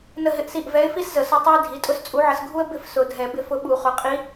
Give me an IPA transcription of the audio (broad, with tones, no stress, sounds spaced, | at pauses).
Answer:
n ə˥˨ ɦ ɪ˥˨ ʔ s i˥˨ ʔ v ɛ˧˥ ɪ̯ f i˥ s z ə˨˩˦ s ʊ˧˥ tˤ ɛ˥ ɪ̯ dʱ i˩˧˩ tʼ ʊ˥ s t͡sʼ u˧˥ ʕ ə˧ s ɡʱ u˥ ə̯ b ɪ˥˨ f s ʊ˨˩˦ dʱ ɛ˨˩˦ b ɪ˧˥ f ʊ˧˥ ɓ u˨˩˦ χ ʊ˩˧˩ qʼ i˧˥